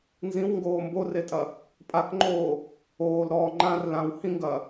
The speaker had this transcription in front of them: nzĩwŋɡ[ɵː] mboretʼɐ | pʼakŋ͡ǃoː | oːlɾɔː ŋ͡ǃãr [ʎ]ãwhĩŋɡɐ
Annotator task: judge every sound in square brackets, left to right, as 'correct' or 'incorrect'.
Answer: incorrect: oː, incorrect: l

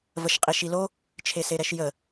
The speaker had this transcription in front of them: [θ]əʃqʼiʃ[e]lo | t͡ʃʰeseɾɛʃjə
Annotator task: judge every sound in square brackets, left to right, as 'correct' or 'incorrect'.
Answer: incorrect: v, incorrect: i

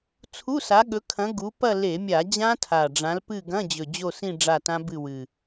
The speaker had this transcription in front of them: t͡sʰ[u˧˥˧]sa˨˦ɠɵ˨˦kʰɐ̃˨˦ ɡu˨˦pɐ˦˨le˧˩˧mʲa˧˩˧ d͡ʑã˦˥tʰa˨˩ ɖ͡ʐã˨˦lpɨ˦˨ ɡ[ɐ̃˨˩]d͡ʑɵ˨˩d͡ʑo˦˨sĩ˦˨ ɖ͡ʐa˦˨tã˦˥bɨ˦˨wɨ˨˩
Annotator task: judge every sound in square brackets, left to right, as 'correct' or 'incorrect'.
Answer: correct, incorrect: ɐ̃˧˥˧

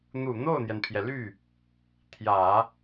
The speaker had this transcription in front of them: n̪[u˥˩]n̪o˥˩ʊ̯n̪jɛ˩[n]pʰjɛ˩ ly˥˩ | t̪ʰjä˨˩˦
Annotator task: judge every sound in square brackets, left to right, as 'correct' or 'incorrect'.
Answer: incorrect: u˨˩, correct

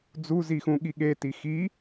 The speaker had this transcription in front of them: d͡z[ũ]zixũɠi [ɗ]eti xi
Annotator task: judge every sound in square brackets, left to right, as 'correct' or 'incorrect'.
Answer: incorrect: u, incorrect: ɠ

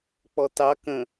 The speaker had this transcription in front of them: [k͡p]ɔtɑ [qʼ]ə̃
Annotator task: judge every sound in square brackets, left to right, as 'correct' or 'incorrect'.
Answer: correct, incorrect: k

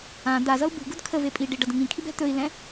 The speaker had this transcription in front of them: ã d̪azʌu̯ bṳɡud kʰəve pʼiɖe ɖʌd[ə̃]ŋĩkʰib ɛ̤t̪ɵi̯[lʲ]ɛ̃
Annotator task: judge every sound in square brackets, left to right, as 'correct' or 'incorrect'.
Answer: correct, incorrect: l

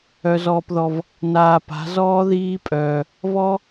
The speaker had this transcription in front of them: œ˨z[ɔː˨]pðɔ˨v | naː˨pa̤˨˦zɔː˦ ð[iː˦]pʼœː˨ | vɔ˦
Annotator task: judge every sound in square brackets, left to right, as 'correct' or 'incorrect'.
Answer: correct, correct

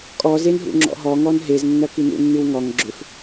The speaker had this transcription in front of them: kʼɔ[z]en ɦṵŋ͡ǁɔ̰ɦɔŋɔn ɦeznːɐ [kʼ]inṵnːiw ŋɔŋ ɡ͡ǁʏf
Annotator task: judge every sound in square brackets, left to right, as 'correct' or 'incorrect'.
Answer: correct, incorrect: k

